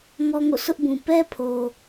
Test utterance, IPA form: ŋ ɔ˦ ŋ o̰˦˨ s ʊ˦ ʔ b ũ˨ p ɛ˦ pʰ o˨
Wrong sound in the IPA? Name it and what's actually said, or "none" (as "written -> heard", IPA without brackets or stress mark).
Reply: none